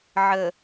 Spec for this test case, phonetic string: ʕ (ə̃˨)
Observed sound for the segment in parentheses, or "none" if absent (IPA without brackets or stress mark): ə˨